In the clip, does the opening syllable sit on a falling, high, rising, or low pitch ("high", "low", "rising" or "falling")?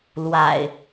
low